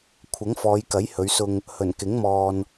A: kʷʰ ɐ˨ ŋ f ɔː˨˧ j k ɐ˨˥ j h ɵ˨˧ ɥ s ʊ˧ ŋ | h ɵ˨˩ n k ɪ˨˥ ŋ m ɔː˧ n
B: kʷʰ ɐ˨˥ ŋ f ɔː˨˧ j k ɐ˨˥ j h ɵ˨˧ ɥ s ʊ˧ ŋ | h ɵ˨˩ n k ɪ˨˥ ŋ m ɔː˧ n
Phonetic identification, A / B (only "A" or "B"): B